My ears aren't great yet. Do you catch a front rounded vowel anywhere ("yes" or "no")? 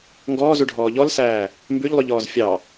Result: no